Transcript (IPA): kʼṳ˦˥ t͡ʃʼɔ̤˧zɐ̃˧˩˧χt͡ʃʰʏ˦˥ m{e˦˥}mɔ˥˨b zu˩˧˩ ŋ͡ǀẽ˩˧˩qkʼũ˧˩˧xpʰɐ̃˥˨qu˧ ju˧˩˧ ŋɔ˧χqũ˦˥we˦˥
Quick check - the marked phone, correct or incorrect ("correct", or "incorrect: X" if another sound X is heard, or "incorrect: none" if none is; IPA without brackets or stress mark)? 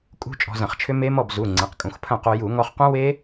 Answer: correct